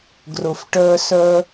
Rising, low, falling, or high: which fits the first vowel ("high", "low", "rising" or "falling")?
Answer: low